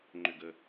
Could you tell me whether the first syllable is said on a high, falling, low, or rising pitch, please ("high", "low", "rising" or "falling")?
falling